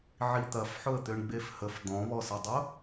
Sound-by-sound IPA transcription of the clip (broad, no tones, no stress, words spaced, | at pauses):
ʕit̪ɐfħʊə̯t̪øɳ ɡ͡befhəf d̪ɔ̃βɔsɐdˤʊ